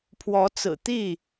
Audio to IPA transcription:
pʰ w ɔ˨˦ t͡s ɹ̩˨˩ t̪ i˥˨

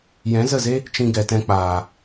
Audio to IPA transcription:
j ɛ̃˨˦ z ə˦˨ z e˦ | t͡ʃ ĩ˧ ɡ ɛ˨ t ɛ̃˧ k͡p aː˨

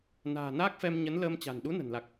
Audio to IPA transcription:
n a̤ː˨˩ n aː˦˥ k̚ f ɛ˧ m ɲ ə˨˦ n l əː˧ m t͡ɕ a̤˨˩ n ɗ u˨˦ n ə̤˨˩ n l a˨˩ k̚

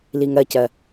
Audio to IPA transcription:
l i ŋ ɜ c ɜ

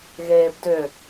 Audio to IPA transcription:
ɣ eː b d ʏ

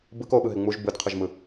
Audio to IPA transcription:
b ɯ k o ɓ ɯ ɦ e ŋ͡m u ʒ b ɯ d qʰ ɯ ʒ m ɯ

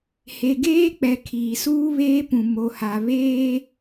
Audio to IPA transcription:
h e˨ ɡ eː˦ k͡p ɛ˨ kʰ iː˨ s uː˦ β eː˦ p ũ˨ m o˨ h a˨ β eː˦

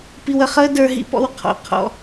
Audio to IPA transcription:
p i˧ w ə˧ χ əː˦ d ə˞˧ ɦ ḭ˧ p ɔ̰˧ w qʰ ɔ̰˨ qʰ ɔ̰˧

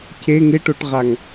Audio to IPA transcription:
c e ŋ ɪ ʈ o ʈ ʁ a ŋ

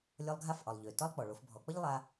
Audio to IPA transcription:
lʲ ɒ˧ lˠ ɡʱ a˧˥ f ʔ ɒ˩ lˠ ʎ ø˩ t ɒ˥ lˠ k͡p ɔ˩ ɭ o˩˧ f bʱ ɔ˩˧ k͡p ʌ˥ ʎ lˠ a˧

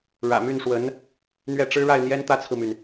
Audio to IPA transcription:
ɻ ä̰˨˩ m y˥˩ n ʂ w ə˧˥ n | n̪ ɥ ɛ˥˩ ʈ͡ʂ ɻ̩˥ ɻ a˥˩ ɪ̯ n̪ j ɛ˥ n t̪ ä˥ t͡sʰ ɹ̩˨ m y˩ n

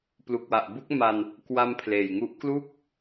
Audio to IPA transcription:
p l u˨˩ k̚ w a˨˩ ʔ b u˦˥ k̚ m a˧ n | k w a˧ m pʰ l eː˨˩ j ŋ u˦˥ ʔ k l u˥˩ k̚

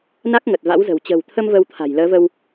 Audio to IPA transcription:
n a˦˥ k̚ ŋ ə˨˩ t̚ v a̰˧˥ w z ə̤˨˩ w t͡ɕ ə̤˨˩ w t̪ʰ ə˧ m v əː˧ w t̪ʰ a̤˨˩ j l əː˨˦ v ə˧ w

